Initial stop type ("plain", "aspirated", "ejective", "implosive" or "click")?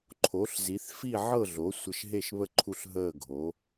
click